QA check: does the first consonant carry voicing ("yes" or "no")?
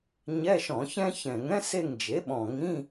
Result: yes